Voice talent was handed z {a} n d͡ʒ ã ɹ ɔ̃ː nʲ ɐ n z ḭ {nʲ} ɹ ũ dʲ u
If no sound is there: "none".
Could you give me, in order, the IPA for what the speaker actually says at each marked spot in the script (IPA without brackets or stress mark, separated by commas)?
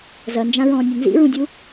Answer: ɐ, none